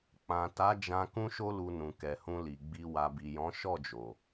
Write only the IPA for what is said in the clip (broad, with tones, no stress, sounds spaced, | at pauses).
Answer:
k͡p ã˨ t a˨˦ d͡ʒ ã˧ k ũ˦ ʃ o˦ l u˧ n ũ˨ k ɛ˨ h ũ˧ l i˨ ɡ͡b i˧ w a˨ b i˨ j ɔ̃˨˦ ʃ ɔ˦˨ d͡ʒ o˨